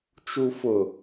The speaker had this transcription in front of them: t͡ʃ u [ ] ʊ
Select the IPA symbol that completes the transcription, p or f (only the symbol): f